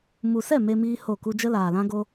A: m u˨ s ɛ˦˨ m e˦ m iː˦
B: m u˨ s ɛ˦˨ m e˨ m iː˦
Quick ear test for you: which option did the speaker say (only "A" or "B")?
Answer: A